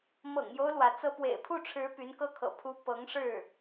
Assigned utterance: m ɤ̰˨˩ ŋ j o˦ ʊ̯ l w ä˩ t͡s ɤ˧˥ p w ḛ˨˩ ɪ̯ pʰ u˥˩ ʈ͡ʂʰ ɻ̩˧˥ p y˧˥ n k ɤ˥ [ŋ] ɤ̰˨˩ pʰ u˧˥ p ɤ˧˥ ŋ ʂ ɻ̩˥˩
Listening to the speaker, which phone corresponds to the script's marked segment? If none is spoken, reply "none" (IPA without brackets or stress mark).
kʰ